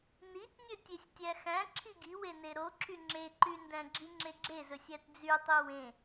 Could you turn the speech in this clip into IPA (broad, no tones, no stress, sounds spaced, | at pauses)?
n i tʲ nʲ ɵ tʲ e sʲ tʲ æ x æ̃ ǁʰ i ɡ i w e n e ɾ o ǁʰ y ŋ͡ǁ e ǃ y n d æ̃ ɡ͡ǁ i ŋ͡ǁ e ɡ͡ǁ e z ɵ sʲ æ t d͡z y tˤ i w ẽ